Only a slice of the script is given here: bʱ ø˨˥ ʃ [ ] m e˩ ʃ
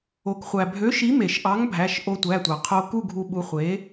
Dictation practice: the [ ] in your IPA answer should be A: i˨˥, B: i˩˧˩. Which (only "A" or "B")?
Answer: A